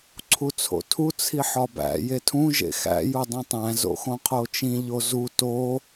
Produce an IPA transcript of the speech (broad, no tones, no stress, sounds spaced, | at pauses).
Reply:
ǀʰ u t͡sʰ o̰ tʰ u t͡sʰ i ħ ɒ b æ̰ j e tʰ ũ ʒ ḛ x æ̰ j u dˤ ĩ tˤ æ̃ z o̰ x õ qʰ o t͡ʃ ĩ ʎ o z u t o